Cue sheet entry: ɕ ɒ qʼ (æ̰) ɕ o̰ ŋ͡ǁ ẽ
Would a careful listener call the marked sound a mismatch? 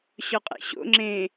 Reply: no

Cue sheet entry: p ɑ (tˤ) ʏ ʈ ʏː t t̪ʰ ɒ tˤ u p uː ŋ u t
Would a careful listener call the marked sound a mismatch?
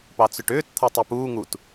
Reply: yes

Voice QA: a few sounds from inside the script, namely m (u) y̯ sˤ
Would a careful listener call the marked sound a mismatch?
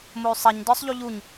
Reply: yes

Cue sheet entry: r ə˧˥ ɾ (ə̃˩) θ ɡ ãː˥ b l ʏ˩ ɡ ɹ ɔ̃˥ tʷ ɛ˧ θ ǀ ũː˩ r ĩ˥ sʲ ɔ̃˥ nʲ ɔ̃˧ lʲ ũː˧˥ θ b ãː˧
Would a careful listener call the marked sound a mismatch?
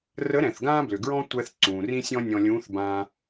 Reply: yes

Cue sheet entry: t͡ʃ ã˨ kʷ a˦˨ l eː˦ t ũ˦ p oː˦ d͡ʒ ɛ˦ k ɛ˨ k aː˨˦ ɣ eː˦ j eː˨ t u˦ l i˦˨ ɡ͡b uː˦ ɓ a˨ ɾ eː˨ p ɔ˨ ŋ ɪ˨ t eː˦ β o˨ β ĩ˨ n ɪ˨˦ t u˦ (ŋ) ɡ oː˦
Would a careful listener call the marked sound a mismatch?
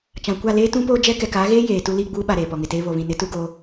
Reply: yes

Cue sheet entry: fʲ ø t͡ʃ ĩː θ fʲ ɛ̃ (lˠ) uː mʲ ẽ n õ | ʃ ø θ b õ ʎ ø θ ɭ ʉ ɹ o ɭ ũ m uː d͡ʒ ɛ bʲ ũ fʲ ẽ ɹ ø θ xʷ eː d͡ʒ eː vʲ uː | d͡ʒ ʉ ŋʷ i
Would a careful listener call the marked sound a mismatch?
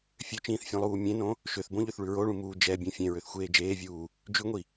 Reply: no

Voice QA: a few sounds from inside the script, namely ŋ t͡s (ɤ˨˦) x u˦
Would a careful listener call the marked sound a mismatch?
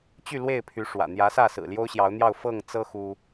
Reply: yes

